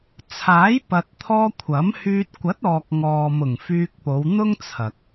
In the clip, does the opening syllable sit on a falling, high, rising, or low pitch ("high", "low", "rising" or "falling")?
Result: rising